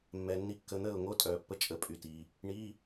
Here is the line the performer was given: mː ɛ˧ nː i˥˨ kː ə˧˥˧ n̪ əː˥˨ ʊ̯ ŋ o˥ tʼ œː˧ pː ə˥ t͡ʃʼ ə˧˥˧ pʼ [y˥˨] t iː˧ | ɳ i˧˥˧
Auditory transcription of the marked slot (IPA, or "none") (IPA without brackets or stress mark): y˥˨